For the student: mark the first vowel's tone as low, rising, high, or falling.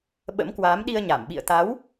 rising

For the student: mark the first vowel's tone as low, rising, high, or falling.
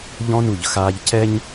high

